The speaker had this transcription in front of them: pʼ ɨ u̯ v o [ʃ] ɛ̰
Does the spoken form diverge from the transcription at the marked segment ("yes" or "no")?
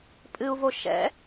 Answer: no